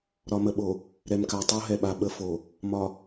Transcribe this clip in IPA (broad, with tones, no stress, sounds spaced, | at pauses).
ɾ ɒ˨ m ə˨ ɓ o˨ | ɾ ɛ˨ m k a˨ tˤ o˦ ɦ ɛ˨ ɓ a˨ ɓ ə˦ f o˨ | m ɒ˨